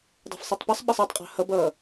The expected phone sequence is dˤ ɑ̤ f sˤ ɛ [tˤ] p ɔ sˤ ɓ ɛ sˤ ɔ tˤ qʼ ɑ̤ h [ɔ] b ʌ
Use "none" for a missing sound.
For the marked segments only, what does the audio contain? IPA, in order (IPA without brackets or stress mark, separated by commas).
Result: tˤ, ʌ